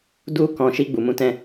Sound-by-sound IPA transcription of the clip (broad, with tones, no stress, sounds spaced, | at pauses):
d u˧ k ɔ̃˧ ʃ i˧ ɡ͡b u˨ m ũ˨˦ t ɛ̃˦